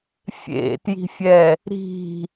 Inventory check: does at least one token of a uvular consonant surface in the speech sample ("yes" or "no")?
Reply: no